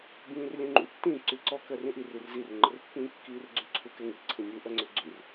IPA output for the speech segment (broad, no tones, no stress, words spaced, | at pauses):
bĩːrlʲũŋ͡ǃṵ tːĩ ǀyǀɔ kɜrĩʔir irzir ŋ͡ǃərpːĩːkːiːrɡ͡ǀy ǀʰukɛŋi ǀʰĩnʲu ʔɜŋ͡ǀøɡ͡ǀyr